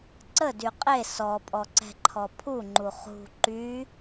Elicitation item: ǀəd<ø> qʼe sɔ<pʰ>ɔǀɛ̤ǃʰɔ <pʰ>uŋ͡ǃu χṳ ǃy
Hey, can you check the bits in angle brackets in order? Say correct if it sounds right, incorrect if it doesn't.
incorrect: y, incorrect: pʼ, correct

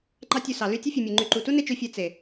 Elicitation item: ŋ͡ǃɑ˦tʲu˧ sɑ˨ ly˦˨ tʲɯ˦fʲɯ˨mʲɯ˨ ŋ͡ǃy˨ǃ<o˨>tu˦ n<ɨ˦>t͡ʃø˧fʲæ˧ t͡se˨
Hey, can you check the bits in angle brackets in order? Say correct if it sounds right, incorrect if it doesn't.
incorrect: u˨, incorrect: e˦

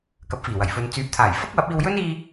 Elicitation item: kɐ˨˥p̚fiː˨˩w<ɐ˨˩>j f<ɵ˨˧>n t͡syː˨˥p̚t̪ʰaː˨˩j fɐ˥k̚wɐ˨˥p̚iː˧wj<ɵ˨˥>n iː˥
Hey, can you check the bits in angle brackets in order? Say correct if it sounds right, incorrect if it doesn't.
correct, correct, incorrect: ɵ˥

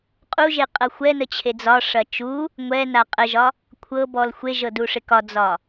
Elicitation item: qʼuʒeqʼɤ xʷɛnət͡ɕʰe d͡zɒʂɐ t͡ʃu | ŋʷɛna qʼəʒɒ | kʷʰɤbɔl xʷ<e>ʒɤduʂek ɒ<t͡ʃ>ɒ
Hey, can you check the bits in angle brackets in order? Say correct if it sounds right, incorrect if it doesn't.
correct, incorrect: d͡z

